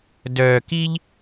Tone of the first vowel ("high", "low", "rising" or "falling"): low